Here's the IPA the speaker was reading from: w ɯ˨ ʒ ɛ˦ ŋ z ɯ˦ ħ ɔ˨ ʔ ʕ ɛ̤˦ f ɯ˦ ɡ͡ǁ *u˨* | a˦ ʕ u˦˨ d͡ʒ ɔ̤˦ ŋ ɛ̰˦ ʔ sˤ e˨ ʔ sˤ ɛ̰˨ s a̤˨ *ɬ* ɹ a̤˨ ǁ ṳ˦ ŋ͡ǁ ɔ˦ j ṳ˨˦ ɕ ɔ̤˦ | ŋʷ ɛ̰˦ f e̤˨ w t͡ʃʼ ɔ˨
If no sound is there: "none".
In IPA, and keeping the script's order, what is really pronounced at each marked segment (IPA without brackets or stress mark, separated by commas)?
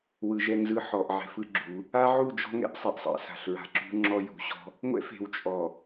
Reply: u˨˦, ɬ